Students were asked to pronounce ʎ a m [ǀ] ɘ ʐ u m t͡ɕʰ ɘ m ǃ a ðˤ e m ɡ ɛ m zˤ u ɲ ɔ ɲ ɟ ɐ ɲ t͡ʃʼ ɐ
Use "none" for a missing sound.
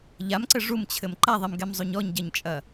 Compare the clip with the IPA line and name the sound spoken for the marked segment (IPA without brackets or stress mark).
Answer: ǀ